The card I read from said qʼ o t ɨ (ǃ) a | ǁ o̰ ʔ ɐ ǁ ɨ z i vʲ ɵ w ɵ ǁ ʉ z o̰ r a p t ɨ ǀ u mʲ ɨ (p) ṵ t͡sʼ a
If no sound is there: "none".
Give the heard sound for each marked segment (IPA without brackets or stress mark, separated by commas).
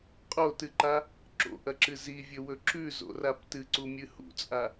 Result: ǃ, h